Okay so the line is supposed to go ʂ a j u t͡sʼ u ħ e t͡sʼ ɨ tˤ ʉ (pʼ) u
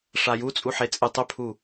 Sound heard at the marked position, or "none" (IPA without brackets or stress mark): pʰ